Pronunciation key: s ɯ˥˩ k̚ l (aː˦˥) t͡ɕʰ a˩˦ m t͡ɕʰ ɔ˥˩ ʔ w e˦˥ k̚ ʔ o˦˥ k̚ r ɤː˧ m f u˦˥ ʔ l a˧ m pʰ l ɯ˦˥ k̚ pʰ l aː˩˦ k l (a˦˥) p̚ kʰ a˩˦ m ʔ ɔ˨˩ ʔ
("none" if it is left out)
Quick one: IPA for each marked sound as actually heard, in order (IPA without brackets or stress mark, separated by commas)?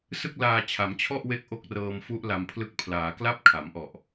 aː˧, a˥˩